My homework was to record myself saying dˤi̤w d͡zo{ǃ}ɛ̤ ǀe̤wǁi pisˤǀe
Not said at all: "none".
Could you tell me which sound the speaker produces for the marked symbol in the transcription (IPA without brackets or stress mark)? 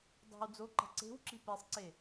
ǃ